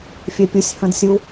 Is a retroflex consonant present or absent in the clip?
absent